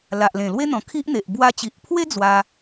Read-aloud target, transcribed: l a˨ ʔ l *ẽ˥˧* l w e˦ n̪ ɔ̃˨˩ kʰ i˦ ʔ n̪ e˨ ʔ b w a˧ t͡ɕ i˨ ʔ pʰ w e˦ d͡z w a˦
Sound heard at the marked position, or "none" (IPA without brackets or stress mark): ẽ˨˩